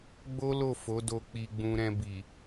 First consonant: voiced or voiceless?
voiced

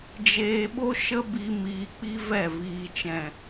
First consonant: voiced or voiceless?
voiced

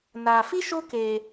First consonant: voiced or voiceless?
voiced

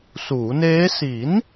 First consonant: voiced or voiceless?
voiceless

